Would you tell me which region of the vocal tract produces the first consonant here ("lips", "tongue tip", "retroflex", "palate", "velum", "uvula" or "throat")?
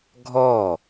velum